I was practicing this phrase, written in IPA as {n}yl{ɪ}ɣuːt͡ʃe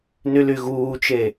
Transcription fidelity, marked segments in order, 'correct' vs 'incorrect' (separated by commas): correct, incorrect